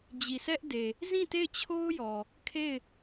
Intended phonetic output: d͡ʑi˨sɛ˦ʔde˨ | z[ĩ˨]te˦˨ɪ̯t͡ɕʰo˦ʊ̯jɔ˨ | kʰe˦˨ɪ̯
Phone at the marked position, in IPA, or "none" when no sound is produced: ĩ˦˨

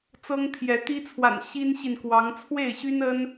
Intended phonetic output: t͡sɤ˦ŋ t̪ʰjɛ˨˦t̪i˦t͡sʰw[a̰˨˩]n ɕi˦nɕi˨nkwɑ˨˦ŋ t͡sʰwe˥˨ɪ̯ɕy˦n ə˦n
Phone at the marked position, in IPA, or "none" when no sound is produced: a̰˨˩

